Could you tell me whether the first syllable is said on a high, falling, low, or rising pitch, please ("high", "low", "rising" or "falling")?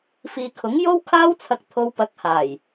low